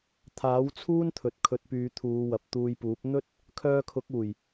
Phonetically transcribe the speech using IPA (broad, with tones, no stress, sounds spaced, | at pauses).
t̪ʰ aː˨˥ w t͡sʰ uː˥ n t̪ʰ ɵ˨ t̚ kʰ ɵ˨˥ t̚ p yː˨˧ t̪ʰ uː˨˧ w ɐ˨ p̚ t̪ uː˧ j p uː˨˥ p̚ n̪ ɵ˥ t̚ | kʰ œː˧ kʰ ʊ˨˥ k̚ uː˨˩ j